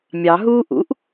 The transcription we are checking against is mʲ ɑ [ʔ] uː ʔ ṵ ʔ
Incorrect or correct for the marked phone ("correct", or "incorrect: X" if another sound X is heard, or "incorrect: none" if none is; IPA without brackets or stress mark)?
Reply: incorrect: ɦ